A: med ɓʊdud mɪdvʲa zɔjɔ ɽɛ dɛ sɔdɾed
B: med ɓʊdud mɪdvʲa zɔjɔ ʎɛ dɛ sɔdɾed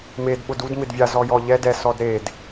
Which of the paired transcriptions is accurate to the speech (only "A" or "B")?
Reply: B